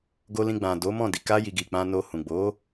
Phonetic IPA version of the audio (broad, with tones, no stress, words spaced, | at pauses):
ɡo˧lĩ˧ ɡ͡bã˨ do˨˦ mɔ̃˦˨di˨ ka˧ji˨ ɡi˨k͡pã˧ no˧hũ˨ ɡ͡bo˨˦